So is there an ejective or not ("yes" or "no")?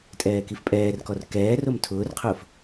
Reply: yes